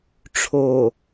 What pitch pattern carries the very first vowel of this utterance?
low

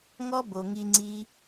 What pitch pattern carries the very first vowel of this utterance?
high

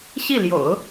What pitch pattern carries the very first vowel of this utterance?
falling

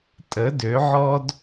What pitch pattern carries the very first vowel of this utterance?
rising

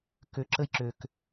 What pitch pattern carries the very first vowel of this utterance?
low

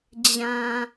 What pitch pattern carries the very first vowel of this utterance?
low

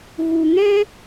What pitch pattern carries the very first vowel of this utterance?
low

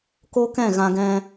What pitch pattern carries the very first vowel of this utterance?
high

